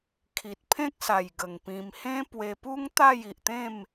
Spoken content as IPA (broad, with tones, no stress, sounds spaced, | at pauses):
kʰ i˨ t̚ pʰ ẽ˦ k̚ s a˨˩ j ɡ ə˨˩ ŋ p ĩ˧ m h ẽ˦ p w e˧ p u˦ ŋ t̪ a˥˧ j i˨ ʔ t̪ ẽ˥˧ m